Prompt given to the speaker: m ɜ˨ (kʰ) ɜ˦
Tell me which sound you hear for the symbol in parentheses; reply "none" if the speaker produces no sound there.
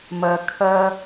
kʰ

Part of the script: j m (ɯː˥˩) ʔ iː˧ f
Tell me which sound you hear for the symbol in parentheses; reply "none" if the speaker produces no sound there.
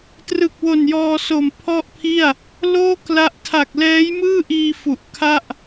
ɯː˥˩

